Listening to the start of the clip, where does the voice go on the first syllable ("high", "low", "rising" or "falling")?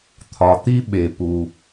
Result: low